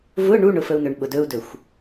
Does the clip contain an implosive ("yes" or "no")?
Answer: yes